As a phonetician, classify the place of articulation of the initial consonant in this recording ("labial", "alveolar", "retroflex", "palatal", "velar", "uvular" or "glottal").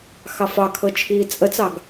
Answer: velar